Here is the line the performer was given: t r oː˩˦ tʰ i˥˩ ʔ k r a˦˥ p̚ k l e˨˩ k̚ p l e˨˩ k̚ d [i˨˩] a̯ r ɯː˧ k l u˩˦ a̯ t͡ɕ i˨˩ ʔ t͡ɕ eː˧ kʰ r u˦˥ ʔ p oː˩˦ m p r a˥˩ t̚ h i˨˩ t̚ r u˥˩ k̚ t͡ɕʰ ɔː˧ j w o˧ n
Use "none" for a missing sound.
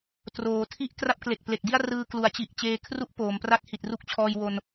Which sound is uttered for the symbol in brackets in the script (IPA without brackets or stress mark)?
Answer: i˥˩